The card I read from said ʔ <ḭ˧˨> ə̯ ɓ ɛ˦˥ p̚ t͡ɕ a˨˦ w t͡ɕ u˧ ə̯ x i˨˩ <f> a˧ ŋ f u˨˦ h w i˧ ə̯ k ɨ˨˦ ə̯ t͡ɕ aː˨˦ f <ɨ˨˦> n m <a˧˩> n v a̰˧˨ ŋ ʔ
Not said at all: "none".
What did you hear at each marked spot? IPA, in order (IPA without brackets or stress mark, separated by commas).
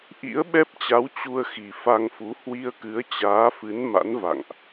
ḭ˧˥, f, ɨ˨˦, a̰˧˥